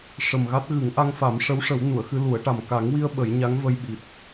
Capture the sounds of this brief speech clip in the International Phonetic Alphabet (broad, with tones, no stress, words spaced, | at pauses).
ʂə˨˩mɣa˦˥t̚ɣɨ˨˩˦ŋ ʔa˧ŋfa˨˩˦m ʂə˧˥wʂə˨˩˦w nu˨˩˨ə̯xɨ˧lu˨˩˦ə̯ʈa˨˩m ka˨˩˦ŋwi˧ə̯ ɓə˨˩˦j ɲa˧˥ŋ və˧jɓi˨˩t̚